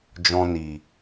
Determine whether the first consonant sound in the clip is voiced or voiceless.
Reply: voiced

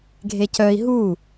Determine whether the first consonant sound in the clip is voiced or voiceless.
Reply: voiced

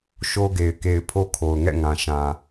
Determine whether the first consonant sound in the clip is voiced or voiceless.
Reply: voiceless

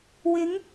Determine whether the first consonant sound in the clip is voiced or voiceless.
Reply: voiced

